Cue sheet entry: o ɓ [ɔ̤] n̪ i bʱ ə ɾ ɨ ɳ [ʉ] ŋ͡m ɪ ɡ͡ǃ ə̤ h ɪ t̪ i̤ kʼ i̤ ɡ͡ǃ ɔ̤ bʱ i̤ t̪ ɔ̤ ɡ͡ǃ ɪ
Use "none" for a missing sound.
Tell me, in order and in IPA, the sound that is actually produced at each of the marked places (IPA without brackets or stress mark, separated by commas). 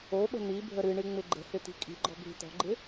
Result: ə̤, ɨ